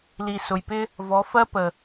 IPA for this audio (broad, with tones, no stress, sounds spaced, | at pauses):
l i˨ s ʊ˨ j p ɪ˦ | v ɔ˨˦ f ɜ˦ p ə˨